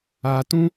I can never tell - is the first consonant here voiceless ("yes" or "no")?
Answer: yes